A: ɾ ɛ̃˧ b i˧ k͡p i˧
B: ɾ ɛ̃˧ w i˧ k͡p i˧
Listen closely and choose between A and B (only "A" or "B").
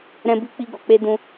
A